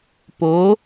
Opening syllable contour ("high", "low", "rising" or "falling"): rising